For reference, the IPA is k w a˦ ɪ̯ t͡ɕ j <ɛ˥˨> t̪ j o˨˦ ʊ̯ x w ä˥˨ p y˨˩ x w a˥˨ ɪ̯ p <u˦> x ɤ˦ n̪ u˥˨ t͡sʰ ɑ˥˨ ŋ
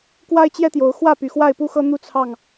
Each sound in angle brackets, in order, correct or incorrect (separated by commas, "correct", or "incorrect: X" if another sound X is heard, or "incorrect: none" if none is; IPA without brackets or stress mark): incorrect: ɛ˦, correct